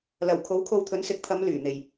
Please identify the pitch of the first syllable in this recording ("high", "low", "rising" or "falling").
low